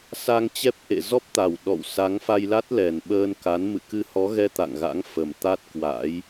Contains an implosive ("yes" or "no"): yes